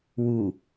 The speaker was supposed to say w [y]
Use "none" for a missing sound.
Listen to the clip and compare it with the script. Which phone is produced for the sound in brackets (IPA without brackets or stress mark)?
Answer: u